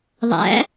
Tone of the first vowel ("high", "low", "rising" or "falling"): rising